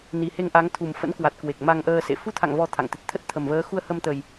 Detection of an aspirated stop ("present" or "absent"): present